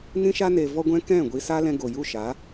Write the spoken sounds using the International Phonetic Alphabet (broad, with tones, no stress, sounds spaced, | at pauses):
n ĩ˦ ʃ a˦ n e˧ v ɔ˦ ɡʷ ɛ̃˦ k ɛ̃˦˨ ɡʷ i˦ s a˦ l ɛ̃˧ ɡ o˨ j u˦˨ ʃ a˨˦